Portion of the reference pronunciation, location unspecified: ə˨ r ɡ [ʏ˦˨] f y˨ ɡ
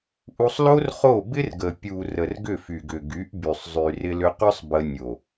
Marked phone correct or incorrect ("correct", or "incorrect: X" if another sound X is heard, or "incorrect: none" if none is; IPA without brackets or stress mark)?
correct